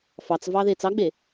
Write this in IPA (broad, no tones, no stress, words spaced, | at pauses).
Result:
fɑt͡svɑðe t͡sɑɡ͡be